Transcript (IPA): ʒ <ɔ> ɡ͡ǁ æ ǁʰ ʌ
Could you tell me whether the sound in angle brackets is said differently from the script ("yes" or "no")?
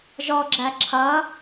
no